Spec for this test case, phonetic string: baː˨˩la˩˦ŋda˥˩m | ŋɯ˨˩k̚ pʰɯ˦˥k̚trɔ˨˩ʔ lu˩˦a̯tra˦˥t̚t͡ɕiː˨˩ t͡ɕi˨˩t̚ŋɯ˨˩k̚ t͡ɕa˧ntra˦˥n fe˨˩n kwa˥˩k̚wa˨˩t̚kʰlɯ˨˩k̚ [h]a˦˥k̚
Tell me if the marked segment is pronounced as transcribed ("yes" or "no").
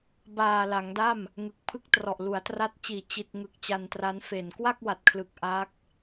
no